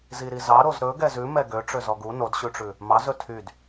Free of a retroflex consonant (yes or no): no